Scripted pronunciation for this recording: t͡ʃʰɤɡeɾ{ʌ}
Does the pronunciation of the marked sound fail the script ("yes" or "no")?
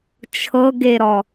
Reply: yes